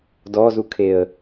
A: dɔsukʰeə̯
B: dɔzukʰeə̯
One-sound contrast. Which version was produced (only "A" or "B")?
B